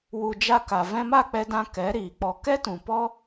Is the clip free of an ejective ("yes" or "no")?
yes